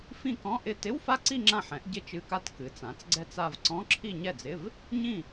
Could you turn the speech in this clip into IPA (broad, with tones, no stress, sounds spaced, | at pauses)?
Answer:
f ĩ˥˧ k ɔ̃˧˥˧ ʔ ɪ˥˧ t ɪ˧˥˧ w f a˥˧ ǀ i˥˧ ŋ͡ǁ ã˥˧ ħ ɛ̃˩˥ ʔ ɟ ɪ˥˧ t͡ʃ ɨ˧˥˧ k a˥˧ t k ɨ˩˥ t͡s ã˩˥ t͡s ɡ͡ǀ ɛ˥˧ t͡s a˥˧ v ǀ ɔ̃˧˥˧ ǁʰ i˥˧ ɲ ɛ˥˩ d͡z ɪ˧˥˧ v | ɲ ĩ˥˩